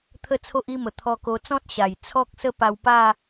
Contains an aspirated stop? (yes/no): yes